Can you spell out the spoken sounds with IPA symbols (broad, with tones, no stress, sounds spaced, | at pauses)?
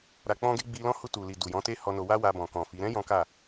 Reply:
ɾ a˨ k͡p ɔ̃˧ ɡ e˧ ɡ͡b i˧ l ɔ̃˦ h u˧ t u˨ l i˨ d u˨ j ɔ̃˨˦ t e˦ h ɔ˧ n o˧ w a˦ w a˧ b ɔ̃˨ k ɔ̃˨ f i˨˦ ɾ ɛ̃˦ j ɔ̃˦ k a˦˨